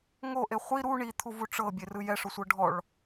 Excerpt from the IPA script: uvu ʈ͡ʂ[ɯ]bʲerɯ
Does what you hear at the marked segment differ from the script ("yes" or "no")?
yes